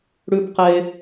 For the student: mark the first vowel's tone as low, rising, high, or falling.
high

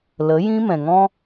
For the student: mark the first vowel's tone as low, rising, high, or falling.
rising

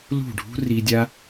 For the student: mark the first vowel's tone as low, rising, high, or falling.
falling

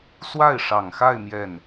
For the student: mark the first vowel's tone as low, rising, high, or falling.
falling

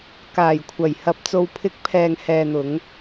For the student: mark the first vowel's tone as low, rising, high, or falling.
low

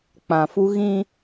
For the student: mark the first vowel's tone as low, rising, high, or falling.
low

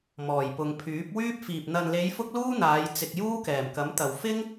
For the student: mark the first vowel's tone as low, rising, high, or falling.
low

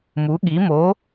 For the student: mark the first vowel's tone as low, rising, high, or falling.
rising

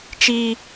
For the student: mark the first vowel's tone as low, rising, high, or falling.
high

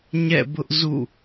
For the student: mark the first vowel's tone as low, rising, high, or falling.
falling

